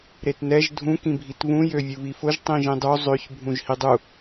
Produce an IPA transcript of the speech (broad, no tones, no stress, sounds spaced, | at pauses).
ɾ e t n ɛ ʒ dʱ ũ k ĩ bʱ i t β ũ j ø vʲ u β i f ʊ ʒ tˤ ĩ ʒ ĩ dˤ u zˤ ø ç bʱ ũ ʒ h i dˤ u